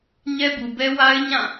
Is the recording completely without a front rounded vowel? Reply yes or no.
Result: yes